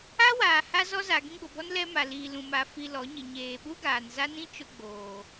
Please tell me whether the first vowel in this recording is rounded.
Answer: no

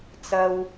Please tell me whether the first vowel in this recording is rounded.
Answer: no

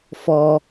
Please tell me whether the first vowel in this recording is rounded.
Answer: yes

